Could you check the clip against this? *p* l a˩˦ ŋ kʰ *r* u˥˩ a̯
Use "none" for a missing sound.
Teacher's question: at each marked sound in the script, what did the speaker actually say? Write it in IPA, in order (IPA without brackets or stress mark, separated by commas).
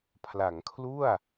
pʰ, l